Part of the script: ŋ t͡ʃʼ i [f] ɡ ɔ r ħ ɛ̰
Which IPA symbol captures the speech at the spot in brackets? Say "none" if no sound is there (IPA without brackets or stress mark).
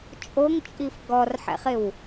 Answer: f